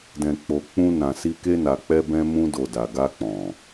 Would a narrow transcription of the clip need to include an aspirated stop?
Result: no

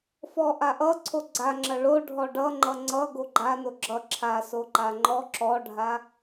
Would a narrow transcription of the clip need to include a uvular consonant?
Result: no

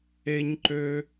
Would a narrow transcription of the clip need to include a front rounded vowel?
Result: yes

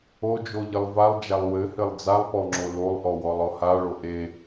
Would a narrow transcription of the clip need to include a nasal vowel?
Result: no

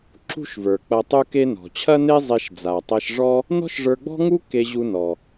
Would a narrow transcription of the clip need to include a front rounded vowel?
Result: no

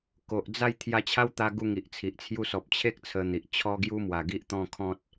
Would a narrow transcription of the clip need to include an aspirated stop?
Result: yes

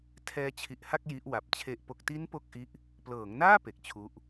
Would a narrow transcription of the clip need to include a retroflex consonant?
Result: no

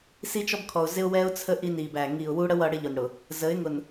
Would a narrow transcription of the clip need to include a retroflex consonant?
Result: yes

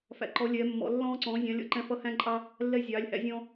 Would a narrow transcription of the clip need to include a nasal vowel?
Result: yes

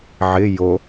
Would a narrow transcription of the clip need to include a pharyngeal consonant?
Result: yes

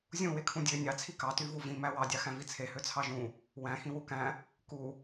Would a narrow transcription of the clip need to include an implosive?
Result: no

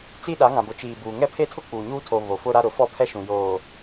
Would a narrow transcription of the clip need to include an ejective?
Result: no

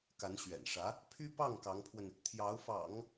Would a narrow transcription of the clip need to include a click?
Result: no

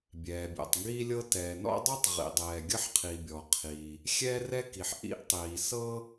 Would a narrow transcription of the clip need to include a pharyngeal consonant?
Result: yes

